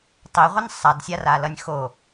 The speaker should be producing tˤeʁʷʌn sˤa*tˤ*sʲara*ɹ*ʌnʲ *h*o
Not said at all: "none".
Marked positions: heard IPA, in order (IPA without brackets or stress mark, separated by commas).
d, l, x